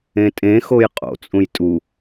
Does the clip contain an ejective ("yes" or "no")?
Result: yes